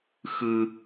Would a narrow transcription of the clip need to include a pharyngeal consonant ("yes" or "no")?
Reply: no